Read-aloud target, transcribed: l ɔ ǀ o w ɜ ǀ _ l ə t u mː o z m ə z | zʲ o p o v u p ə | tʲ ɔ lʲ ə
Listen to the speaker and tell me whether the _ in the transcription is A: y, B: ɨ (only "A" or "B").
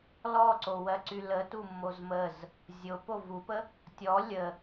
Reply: A